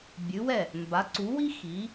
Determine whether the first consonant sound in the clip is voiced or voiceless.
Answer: voiced